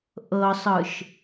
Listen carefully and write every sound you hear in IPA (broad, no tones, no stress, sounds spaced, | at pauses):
ʔ ɤ sˤ ɯ ʃ